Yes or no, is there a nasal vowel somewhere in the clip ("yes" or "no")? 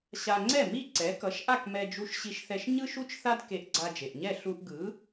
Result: no